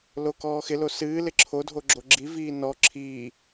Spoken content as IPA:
l o k ɔː x ɪ l o s ɨː l ɪ ǁʰ o dʱ o ɡ͡ǁ o ɡ͡ǁ i v iː n ɔ ǁʰ iː

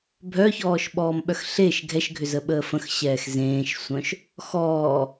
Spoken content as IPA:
bʱ œ ç ɔː ʃ ɓ ɔː m ɓ œ x ɬ e ʃ ɡʱ ɛ ʃ ɡʱ ʏ z ə ɓ əː f ə̃ x ɕ ɛː x z ẽː ʃ sʷ œ̃ ʃ | x ɔː

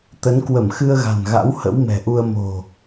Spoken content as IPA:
t̪ ə˨˦ n k w ə˧˩ m x ɨ˧ ə̯ ɣ a̤˨˩ n ɣ a̰˧˥ w h ə̰˧˥ w m ɛ̤˨˩ ʔ u˧ ə̯ m o̤˨˩

